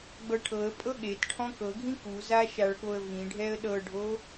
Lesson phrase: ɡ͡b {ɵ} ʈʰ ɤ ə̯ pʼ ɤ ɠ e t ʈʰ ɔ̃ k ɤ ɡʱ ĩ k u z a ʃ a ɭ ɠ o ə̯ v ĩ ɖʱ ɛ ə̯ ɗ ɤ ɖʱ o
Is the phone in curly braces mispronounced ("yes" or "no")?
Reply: yes